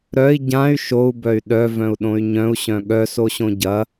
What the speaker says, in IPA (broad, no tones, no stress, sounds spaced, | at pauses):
ɾ œ i̯ ɟ ã y̯ ʃ o u̯ b œ y̯ ɗ œ v œ̃ u̯ ɗ õ y̯ ɲ œ̃ u̯ ɕ œ̃ ɠ œ s o ɕ õ ɟ ɐ